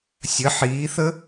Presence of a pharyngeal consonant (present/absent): present